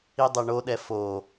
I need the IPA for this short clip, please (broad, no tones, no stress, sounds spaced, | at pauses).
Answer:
i dˤ ɛ ɳ o ɗ ɛ f o